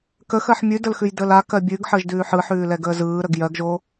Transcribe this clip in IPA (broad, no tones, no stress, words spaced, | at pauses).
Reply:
kəxɜħ mʲʉdəlxʉjdəːl akɜ bʲʉɡħəːʒdʉː ħɯħʉːlɛɡəː zɯːɾəɡ jɜɡʒo